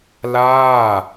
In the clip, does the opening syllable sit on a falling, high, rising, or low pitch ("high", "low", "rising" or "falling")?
falling